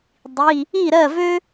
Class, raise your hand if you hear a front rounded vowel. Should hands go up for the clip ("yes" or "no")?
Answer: yes